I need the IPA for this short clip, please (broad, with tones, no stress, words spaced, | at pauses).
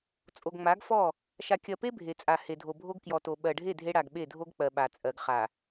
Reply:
t͡sʼo˨ɡŋ͡ma˨˦ɡfɔ˦˨ | ʃa˨kʲɜ˨pe˦ bʱe˨t͡sʼa˨ he˨dʱo˨bʱo˦ɡ kjɔ˨to˨ ɓɜ˨ɖʱe˦˨ dʱe˦ ɽa˨ɡ ɓe˦˨dʱo˦ɡ k͡pɜ˨ɓa˨t͡sʼɜ˨ɡ χa˨